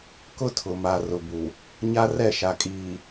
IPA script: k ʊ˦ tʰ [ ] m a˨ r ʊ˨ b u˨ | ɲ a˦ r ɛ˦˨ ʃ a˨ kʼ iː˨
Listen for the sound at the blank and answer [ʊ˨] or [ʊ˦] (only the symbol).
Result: ʊ˨